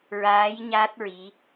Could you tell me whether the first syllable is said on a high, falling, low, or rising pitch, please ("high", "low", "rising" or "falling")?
rising